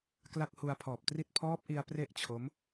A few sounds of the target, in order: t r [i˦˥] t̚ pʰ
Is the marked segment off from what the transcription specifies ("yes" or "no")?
no